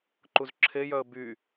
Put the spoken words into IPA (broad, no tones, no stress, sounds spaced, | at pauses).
ǃ u z ǁʰ e j œ ə̯ b y